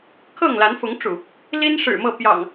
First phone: kʰ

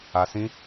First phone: a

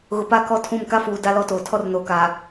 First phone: ɣ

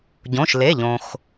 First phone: ɟ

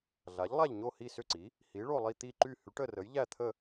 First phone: ɮ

